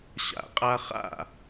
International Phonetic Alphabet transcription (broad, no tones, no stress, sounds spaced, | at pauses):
ɕ a̰ qʼ a χ a̰